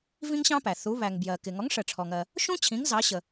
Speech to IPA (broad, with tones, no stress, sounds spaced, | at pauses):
v ĩ˥ ŋ ɕ ɑ̃˥ p æ˩ θ u˩˥ β æ˩ ŋ b j ɜ˩ k ɪ˩ ŋ ɔ˩˥ ŋ ʂ ɜ˩ ʈ͡ʂʰ ɔ˩ ŋ ɜ˩ | ʃ ũ˥ t͡ɕʰ ĩ˩˥ ŋ z ɑ˩˥ ɕ ə˩